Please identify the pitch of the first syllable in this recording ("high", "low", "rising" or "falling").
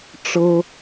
high